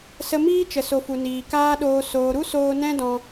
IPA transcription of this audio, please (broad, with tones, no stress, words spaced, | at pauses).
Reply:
sə˧miː˦t͡ʃə˨so˨ fu˨niː˨kaː˦ɗoː˧ soː˨ɾu˦ soː˦ nɛ̃˦dɔ̃˧